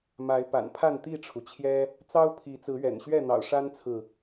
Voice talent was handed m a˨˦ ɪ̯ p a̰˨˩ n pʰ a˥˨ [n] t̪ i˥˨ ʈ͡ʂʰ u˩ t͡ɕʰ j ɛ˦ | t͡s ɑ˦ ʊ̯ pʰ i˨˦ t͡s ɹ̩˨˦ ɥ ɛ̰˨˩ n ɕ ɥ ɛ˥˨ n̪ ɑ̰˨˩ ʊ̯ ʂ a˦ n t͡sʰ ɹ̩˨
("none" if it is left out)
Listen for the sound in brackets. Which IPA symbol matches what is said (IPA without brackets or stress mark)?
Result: n